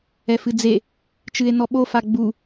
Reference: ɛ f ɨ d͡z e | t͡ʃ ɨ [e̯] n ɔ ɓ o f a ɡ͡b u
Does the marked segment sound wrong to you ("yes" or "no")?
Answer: no